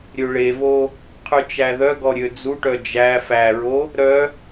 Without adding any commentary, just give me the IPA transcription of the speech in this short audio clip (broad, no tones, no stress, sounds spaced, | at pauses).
ɾʲ ø ɭ e v o | qʰ ʉ t͡ʃ æ ð œ ɡ ɔ ɾʲ ø d͡z u ʈ œ d͡ʒ æ f æ ɹ o | ɾ œ